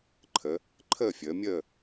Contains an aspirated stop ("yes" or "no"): yes